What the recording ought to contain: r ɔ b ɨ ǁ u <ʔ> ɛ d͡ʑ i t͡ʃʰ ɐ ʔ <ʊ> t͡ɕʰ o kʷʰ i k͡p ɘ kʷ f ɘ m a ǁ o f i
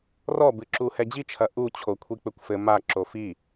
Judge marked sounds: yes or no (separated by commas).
no, no